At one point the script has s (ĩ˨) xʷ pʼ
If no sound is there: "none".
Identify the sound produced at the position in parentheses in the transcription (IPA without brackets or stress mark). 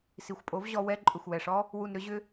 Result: i˨